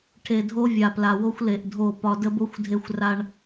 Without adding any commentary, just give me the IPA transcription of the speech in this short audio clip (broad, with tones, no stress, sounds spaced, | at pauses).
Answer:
ʈʰ e˨ dʱ o˦ vʲ a˨ p l a˨ w o˦ xʷ l e˨ ʔ dʱ o˦˨ p ɒ˦ d ə˦ b o˦ xʷ dʱ e˦ xʷ r a˦ ɳ